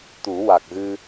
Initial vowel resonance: oral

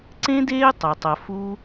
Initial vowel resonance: nasal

